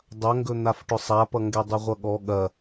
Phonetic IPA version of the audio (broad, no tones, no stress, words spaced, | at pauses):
dˤɐŋɡɵ n̪afʈʊsˤapʌ ŋɡɛdˤɵʁʷʌɠɔ ɠɐ